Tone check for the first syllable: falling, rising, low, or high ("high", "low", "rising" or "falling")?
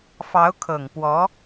rising